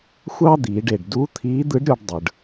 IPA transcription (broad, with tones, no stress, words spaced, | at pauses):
xʷɑ˥d̪iː˩˧ɖe˩ɖ du˧˥ t̪ʰiː˧˥d̪ɯ˧˥ɖɾʲo˧ɖ dˤɯ˩ɖ